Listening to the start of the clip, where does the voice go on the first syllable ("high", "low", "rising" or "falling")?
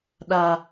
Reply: low